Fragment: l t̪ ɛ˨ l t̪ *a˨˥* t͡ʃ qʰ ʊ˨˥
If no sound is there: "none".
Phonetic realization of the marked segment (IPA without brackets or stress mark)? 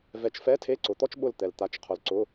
a˨˥